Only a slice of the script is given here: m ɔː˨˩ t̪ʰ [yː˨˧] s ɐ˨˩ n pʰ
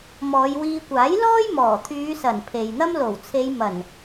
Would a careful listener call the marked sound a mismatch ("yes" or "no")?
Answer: no